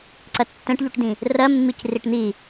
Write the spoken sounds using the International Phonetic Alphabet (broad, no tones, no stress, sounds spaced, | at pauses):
ǀ ɜ tː ɛ̃ ʈ ʎ u ʈ d ĩ | r ɜ mː i c r i ʈ n̪ i